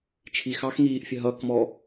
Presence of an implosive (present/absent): absent